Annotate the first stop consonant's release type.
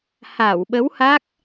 implosive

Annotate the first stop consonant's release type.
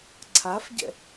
click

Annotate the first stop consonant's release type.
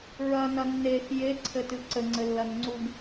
click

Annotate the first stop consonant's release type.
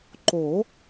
click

